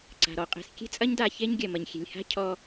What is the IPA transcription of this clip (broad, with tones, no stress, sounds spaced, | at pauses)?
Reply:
ǀ a̤˨ ɾ ɔ˧ qʼ e̤˨ s kʲ e̤˦ t͡sʼ ɐ˦ ɲ d a˧ ç e˦ ɲ ɡʲ ɐ˨ m ɐ˨ ɲ xʲ e̤˨ lʲ h a̤˦ cʰ ɔ˧